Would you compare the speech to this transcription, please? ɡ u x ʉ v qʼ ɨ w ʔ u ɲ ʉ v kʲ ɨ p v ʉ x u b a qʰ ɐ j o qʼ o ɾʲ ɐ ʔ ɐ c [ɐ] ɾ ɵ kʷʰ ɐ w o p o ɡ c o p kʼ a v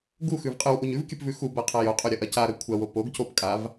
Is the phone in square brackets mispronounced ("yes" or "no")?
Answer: yes